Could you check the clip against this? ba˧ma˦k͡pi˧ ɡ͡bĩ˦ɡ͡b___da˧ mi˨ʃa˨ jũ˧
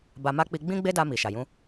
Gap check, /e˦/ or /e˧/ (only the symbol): e˦